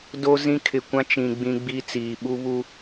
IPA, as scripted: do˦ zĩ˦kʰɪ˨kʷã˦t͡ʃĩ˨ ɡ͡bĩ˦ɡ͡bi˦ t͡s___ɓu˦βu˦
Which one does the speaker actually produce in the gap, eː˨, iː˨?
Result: iː˨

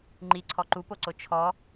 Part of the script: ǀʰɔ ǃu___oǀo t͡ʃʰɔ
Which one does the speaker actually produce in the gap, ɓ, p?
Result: p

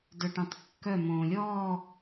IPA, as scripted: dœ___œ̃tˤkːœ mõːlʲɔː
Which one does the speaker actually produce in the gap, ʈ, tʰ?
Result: ʈ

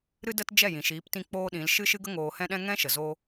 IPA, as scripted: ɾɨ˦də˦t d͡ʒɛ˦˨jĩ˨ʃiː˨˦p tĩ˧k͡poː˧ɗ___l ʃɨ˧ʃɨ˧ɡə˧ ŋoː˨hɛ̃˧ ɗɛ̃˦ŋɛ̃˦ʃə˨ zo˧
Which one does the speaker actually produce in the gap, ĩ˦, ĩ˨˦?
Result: ĩ˨˦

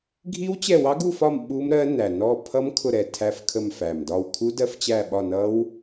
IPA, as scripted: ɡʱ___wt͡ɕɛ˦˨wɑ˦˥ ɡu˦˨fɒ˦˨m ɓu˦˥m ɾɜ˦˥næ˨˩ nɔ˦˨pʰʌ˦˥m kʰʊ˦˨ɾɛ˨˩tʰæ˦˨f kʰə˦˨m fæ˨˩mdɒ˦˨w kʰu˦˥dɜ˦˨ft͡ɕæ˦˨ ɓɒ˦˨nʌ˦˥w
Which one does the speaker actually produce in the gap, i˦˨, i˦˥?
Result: i˦˥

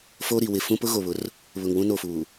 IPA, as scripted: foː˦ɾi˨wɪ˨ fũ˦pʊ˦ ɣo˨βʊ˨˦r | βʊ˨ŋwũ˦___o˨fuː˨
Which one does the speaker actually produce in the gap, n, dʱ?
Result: n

